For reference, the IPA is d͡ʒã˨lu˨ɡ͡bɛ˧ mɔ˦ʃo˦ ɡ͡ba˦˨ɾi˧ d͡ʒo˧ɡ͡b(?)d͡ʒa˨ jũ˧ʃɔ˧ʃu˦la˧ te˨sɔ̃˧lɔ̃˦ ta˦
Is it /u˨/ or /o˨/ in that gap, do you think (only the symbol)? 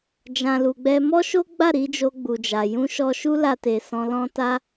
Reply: u˨